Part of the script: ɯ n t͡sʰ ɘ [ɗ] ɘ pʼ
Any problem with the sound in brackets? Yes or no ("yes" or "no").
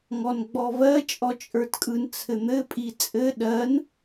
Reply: yes